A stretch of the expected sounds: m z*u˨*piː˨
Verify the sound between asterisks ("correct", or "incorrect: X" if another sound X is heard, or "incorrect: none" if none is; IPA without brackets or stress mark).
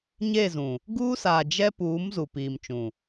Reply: correct